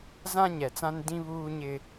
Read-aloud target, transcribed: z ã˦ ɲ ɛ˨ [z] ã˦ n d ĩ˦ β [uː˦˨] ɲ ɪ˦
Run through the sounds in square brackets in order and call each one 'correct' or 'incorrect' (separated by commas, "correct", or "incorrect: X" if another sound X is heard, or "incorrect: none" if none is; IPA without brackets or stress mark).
incorrect: t͡s, incorrect: uː˦